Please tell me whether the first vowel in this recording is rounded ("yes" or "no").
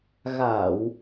no